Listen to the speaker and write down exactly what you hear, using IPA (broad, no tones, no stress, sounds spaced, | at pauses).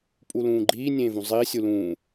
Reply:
pʼ u l ũː ɡ͡ǃ iː nʲ ẽː v ũ zˤ iː sʲ u l ũː